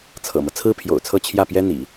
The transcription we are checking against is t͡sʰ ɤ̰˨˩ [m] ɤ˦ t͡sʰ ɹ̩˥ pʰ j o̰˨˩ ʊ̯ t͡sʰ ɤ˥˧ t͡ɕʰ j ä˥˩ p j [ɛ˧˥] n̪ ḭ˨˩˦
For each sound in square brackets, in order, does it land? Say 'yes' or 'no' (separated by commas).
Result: yes, no